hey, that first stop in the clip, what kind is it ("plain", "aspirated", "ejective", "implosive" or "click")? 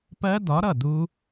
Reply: plain